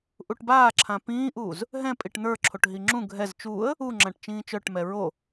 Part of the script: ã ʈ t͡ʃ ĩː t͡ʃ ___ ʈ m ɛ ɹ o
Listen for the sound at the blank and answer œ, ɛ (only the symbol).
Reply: œ